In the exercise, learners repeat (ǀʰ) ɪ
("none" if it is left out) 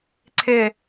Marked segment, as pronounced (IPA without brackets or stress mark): ǀʰ